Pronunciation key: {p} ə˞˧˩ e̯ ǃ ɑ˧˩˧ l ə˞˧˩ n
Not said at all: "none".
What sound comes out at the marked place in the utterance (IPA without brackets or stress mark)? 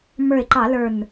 m